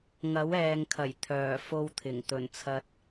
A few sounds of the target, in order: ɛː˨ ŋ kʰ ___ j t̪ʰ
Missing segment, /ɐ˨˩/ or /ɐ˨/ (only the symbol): ɐ˨˩